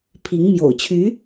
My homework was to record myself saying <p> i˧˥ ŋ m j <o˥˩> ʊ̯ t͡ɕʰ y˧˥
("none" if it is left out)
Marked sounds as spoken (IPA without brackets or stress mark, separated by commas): pʰ, o̰˨˩